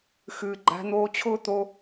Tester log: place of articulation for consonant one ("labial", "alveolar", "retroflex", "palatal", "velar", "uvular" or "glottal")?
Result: velar